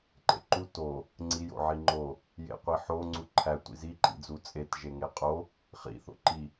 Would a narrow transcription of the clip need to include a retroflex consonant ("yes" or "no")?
no